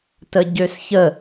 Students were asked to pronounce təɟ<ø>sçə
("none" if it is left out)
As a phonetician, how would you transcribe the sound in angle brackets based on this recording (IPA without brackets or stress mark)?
ø